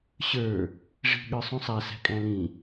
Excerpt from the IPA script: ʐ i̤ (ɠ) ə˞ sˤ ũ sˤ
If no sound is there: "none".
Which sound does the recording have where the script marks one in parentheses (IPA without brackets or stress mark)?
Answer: ɠ